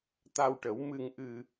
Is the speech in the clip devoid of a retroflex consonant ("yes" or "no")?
no